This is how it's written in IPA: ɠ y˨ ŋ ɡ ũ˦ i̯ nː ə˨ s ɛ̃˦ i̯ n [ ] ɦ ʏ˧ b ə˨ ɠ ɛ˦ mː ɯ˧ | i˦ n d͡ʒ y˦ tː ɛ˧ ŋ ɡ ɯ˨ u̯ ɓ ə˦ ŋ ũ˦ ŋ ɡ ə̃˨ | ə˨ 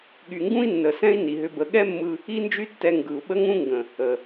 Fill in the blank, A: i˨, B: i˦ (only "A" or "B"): A